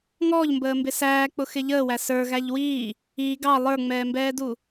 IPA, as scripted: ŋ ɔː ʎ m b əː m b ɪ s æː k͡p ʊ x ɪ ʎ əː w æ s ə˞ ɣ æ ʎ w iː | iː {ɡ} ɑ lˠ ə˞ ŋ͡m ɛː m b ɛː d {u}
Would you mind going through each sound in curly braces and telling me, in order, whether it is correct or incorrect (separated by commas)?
correct, correct